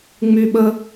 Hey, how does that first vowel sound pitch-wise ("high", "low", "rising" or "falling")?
high